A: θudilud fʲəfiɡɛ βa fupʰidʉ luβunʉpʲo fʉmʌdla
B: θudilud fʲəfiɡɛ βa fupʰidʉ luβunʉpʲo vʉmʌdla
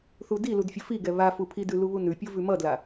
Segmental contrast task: B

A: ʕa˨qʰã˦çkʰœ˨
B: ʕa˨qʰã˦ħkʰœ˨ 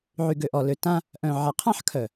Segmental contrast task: B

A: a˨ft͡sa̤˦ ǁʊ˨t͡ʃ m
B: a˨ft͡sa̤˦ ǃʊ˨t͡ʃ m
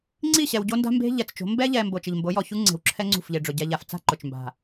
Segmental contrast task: B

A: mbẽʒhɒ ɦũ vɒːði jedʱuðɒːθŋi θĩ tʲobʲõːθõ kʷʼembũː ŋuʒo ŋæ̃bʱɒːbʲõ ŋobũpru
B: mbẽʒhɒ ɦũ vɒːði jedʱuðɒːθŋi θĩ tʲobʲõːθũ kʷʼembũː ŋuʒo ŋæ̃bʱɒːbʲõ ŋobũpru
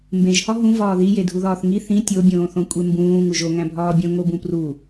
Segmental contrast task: A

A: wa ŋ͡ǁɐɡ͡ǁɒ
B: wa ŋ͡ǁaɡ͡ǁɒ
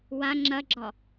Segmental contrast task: A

